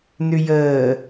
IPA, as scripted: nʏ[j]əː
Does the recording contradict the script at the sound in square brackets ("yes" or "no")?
no